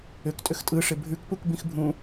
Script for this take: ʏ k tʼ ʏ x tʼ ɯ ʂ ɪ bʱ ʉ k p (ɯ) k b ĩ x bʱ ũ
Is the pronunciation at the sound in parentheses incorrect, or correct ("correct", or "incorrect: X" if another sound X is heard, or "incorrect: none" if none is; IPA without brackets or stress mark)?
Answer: incorrect: u